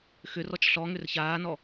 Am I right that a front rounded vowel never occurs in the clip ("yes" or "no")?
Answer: no